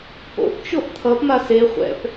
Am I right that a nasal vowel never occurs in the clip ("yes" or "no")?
yes